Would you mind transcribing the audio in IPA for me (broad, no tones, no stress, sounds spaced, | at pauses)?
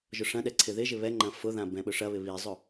ʒ ʊ ʂ ɐ̃ ɗ ɛ ǀʰ ɪ ð ɪ ʒ ɪ β ɛ ŋ͡ǃ ɐ̃ f ʊ ð ã b ɛ̃ ɓ ʊ ʂ ɐ β ɪ β i zˤ ʊ